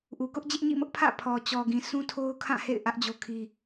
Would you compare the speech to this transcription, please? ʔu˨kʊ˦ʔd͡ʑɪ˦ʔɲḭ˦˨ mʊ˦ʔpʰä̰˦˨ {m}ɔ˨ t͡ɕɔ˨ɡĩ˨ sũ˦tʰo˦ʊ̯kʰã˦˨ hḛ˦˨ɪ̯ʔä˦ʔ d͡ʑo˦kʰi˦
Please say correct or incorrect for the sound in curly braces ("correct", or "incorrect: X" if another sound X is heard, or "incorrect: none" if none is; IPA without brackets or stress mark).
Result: incorrect: pʰ